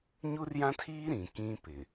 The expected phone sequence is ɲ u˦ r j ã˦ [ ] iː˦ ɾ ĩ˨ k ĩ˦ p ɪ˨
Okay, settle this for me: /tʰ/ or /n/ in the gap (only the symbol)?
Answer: tʰ